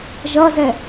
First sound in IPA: ʒ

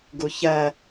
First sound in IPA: ɡ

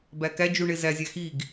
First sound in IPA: b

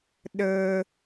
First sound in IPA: ɗ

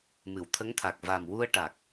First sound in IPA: m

